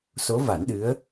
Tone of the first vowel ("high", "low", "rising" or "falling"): rising